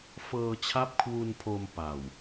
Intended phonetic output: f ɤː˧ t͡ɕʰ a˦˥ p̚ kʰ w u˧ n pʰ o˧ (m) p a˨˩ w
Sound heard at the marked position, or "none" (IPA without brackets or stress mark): m